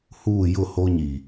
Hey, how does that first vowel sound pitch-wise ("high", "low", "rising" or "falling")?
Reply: falling